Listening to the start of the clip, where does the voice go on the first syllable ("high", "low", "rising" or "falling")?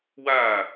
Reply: falling